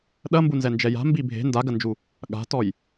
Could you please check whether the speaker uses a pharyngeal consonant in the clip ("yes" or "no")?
no